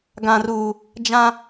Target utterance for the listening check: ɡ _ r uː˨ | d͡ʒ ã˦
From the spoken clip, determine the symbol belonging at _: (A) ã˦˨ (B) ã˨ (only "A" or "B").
B